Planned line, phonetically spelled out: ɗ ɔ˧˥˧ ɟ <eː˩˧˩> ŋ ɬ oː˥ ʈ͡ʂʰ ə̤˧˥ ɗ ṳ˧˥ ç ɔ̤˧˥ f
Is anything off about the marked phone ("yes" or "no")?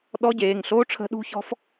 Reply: no